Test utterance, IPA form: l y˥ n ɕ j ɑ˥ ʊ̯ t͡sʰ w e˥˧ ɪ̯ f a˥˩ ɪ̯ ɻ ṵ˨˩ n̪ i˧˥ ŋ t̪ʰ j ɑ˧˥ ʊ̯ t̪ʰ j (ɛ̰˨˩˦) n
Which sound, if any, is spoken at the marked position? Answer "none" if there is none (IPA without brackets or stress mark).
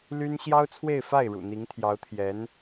ɛ˧˥